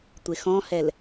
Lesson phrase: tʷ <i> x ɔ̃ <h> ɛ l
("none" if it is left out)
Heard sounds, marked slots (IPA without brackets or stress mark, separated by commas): e, h